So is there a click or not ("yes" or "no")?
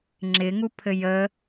yes